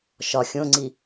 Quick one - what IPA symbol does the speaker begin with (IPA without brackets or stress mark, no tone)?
ʃ